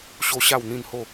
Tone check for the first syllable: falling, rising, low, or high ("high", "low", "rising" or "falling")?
high